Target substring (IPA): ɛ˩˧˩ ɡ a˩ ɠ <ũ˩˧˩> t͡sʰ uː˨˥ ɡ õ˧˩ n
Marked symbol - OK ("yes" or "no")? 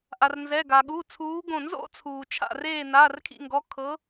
no